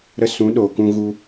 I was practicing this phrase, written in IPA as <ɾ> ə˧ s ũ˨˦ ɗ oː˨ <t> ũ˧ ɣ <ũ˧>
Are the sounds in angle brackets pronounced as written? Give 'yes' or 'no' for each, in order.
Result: yes, no, no

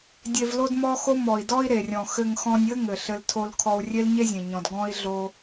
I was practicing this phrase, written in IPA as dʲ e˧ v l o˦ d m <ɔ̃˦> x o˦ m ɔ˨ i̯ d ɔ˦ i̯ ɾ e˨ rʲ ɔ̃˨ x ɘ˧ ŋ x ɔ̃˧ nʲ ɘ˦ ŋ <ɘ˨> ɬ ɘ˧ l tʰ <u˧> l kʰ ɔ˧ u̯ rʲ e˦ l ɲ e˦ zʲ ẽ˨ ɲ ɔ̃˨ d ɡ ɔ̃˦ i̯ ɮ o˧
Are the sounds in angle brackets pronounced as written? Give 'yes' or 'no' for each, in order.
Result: no, yes, no

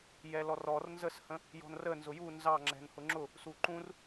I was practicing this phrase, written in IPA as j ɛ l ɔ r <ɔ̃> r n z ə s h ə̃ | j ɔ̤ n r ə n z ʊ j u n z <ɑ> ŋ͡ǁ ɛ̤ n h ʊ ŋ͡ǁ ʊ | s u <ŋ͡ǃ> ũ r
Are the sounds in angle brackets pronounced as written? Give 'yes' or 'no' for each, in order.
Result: no, yes, no

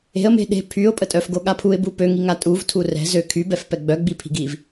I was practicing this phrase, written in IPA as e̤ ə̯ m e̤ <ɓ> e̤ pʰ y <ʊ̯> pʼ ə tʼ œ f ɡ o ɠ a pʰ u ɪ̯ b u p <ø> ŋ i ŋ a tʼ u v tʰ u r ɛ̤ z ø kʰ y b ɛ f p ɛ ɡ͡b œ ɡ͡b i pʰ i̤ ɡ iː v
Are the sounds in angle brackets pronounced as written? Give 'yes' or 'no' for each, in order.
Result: no, yes, yes

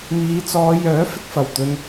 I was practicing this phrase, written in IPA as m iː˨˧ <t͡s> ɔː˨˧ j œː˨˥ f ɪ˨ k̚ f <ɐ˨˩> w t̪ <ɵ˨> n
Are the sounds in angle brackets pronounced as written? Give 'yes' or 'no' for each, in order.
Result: yes, yes, no

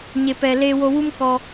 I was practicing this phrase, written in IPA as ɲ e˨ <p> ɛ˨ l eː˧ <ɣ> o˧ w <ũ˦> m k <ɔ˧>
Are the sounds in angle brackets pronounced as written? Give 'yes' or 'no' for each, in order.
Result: yes, no, no, yes

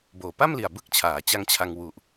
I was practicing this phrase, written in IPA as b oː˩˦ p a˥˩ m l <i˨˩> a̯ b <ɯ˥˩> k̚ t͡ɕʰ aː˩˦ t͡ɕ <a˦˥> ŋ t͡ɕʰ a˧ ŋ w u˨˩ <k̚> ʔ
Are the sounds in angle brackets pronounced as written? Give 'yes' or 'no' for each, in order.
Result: yes, yes, yes, no

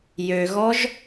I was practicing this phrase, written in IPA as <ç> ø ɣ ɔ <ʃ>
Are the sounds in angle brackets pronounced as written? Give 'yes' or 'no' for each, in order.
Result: no, no

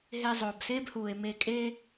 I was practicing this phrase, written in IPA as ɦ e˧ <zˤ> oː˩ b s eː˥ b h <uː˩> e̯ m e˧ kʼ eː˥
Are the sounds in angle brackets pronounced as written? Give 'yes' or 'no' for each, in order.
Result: yes, yes

